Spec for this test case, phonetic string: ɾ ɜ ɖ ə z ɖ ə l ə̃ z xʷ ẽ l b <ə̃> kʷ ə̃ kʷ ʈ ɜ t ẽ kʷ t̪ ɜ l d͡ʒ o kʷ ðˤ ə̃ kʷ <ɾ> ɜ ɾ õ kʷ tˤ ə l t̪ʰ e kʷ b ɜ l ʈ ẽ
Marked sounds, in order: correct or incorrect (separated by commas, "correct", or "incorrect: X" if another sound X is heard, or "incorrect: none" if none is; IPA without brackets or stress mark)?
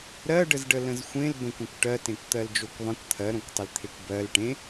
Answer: correct, incorrect: t̪ʰ